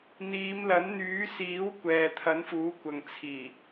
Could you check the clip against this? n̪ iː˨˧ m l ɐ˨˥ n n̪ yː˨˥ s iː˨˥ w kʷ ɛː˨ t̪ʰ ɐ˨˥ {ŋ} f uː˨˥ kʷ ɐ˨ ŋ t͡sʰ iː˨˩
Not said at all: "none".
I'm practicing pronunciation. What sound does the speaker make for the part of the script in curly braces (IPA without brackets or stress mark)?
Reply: n